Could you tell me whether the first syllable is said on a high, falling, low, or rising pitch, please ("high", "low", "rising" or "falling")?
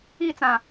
falling